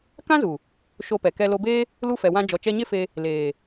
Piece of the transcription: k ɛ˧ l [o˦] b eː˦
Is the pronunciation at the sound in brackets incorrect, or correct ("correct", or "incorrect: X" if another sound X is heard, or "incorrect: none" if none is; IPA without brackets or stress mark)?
incorrect: o˧